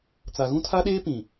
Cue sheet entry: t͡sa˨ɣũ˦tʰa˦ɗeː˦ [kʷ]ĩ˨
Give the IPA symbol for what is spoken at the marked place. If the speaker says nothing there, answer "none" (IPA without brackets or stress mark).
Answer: p